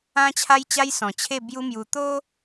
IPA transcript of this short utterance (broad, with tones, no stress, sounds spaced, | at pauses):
ã˦ t͡ɕʰ a˦ j t͡ɕ a˦ j s ɔ̃˨˩ t͡ɕʰ e˥˧ b j u˦ m j u˧ t̪ o˦